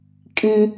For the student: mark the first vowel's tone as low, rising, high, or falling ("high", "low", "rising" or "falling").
high